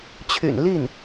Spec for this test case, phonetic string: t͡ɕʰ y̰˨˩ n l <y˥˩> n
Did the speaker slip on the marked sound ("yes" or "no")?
yes